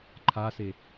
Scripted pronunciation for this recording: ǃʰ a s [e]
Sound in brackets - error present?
no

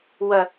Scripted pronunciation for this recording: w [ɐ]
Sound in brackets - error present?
no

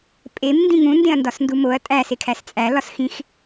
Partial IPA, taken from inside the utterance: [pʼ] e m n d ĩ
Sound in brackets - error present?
no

